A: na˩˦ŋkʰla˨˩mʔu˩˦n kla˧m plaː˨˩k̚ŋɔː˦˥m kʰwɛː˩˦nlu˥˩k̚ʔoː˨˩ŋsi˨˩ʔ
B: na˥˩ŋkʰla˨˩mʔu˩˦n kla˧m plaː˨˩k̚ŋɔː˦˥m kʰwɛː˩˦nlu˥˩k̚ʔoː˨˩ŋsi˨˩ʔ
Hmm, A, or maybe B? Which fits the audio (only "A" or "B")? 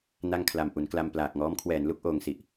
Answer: B